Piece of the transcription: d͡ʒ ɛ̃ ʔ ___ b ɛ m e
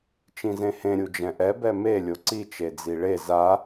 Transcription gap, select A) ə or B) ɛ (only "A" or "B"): B